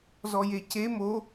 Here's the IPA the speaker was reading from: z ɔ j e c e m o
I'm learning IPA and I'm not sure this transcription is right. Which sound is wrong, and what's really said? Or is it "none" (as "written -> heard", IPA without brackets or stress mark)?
none